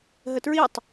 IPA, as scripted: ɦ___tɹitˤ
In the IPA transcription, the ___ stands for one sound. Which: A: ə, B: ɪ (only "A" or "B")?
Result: A